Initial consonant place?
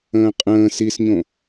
uvular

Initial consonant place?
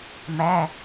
labial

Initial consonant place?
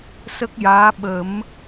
alveolar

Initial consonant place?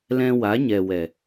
alveolar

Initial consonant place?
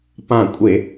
labial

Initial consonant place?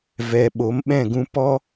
labial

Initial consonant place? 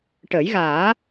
retroflex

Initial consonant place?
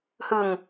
glottal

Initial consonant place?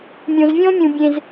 labial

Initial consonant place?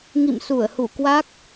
velar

